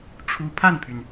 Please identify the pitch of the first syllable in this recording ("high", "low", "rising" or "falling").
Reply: rising